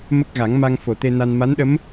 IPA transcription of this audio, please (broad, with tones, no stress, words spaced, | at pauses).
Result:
mə˦˥k̚ɣa˨˩˦ŋma˧ŋ fo˨˩t̪e˧na˧n ma˧˥nɗə˧˥m